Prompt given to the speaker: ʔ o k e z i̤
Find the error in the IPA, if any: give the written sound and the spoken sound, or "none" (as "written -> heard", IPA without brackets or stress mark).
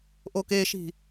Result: z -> ʃ